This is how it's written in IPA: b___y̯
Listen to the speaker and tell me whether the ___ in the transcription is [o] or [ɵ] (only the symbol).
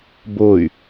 o